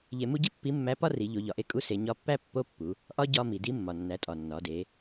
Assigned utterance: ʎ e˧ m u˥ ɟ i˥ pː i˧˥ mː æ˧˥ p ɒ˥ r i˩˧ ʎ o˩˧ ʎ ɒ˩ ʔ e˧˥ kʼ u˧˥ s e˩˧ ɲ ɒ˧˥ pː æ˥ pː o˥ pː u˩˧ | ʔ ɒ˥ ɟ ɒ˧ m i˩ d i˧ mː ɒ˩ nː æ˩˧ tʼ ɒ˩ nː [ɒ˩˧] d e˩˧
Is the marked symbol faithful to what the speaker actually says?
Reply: yes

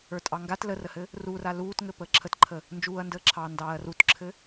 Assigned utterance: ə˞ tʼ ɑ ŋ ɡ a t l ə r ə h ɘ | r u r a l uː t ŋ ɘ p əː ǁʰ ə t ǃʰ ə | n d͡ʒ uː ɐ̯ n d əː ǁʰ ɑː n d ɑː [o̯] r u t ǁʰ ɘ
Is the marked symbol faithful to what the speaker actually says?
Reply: no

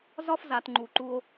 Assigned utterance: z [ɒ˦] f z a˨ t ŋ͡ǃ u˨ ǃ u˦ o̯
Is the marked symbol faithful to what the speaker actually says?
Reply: yes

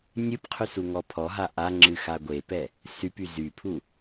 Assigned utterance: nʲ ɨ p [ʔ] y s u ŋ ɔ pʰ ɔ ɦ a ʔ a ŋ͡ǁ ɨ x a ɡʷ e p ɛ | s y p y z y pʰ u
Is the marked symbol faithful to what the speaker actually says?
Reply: no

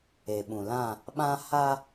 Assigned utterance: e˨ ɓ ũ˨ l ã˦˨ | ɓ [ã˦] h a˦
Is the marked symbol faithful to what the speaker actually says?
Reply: yes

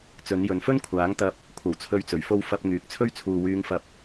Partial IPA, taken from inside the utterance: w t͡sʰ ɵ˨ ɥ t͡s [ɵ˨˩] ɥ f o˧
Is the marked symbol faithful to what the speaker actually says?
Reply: yes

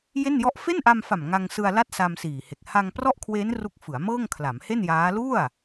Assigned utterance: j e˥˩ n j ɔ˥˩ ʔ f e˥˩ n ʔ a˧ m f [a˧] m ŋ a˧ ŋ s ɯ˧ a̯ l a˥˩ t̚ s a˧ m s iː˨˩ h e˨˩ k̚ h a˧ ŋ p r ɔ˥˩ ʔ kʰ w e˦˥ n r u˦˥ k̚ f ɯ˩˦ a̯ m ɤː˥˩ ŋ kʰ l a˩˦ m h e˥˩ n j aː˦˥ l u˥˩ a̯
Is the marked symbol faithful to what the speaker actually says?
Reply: no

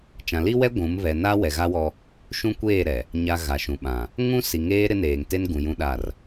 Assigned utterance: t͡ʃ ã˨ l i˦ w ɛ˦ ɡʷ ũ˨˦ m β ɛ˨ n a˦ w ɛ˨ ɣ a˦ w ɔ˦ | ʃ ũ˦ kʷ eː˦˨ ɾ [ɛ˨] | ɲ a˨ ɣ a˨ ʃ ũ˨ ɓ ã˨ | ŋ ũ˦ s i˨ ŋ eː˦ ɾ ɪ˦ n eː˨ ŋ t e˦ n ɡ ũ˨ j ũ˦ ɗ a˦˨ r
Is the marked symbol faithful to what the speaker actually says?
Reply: yes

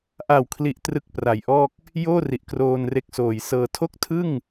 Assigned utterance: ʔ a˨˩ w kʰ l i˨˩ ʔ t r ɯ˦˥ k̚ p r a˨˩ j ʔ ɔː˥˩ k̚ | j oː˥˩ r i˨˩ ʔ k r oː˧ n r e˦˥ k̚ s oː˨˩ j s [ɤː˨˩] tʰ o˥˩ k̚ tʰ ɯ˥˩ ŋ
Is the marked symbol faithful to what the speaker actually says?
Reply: no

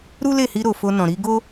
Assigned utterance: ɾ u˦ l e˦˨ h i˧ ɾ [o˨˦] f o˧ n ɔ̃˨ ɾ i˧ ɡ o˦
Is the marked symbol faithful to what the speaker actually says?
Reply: no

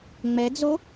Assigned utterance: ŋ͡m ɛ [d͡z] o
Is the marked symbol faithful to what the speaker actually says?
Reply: yes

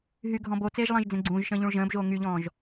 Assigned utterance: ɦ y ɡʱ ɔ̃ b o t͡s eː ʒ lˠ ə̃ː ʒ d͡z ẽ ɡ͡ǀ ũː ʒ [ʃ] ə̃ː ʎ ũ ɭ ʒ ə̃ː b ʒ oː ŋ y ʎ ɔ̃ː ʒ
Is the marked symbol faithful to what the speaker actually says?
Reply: yes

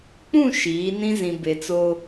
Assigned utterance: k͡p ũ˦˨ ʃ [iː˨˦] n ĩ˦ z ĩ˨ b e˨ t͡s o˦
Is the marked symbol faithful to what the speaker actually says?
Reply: yes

